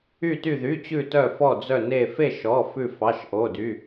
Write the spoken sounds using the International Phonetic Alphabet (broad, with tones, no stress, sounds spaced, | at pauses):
y˧˩ t y˧˩ ð y˩˧˩ t͡ɕ ʉ˧˩ t œ˧˩ f ɔ˧˩ d͡z œ˧˩ n e˧˩ f e˥˨ ʃ ɔ˩˧˩ f ʉ˧˩ f ɑ˩˧˩ ʃ ʔ o˩˧˩ d y˩˧˩